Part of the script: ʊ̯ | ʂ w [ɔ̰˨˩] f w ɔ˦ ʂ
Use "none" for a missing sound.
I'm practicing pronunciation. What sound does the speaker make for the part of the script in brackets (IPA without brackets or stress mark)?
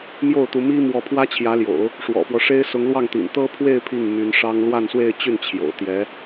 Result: ɔ̰˨˩